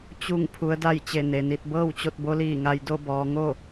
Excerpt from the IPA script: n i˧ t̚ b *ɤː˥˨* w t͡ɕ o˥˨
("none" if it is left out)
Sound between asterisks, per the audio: ɤː˥˨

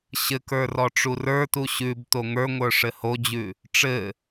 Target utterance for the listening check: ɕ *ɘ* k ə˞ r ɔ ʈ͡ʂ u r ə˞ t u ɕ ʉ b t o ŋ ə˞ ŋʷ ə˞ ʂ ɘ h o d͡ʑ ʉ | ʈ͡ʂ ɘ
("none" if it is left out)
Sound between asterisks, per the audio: ɘ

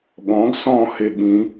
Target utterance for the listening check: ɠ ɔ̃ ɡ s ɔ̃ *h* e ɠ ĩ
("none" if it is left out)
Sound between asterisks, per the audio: h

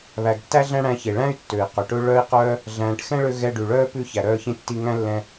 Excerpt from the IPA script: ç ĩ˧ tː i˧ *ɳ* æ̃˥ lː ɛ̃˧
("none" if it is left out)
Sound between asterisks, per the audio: ŋ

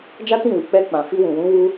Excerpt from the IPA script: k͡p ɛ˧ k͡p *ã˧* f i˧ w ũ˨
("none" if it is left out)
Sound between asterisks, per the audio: ã˨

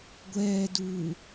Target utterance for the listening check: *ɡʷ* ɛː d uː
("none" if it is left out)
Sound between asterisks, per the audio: ɡʷ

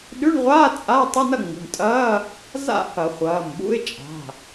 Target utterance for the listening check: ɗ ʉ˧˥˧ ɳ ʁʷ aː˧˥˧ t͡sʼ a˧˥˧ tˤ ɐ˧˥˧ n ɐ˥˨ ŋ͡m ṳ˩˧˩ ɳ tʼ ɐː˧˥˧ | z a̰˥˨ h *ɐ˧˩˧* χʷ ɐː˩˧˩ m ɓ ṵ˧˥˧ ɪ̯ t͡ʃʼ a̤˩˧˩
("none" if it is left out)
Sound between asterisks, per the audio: ɐ˧˩˧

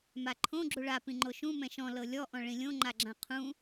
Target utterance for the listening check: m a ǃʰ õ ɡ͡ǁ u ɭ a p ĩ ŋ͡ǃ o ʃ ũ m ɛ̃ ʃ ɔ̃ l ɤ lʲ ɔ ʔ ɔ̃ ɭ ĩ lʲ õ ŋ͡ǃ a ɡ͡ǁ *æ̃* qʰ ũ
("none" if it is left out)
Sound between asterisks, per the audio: ã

